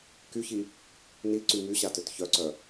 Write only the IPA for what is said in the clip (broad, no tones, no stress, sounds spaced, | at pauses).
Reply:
k y ç i | n i ǀ y m y ɕ a t ø t ç œ ǀ œ